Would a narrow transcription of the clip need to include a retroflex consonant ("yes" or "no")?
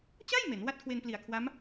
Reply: no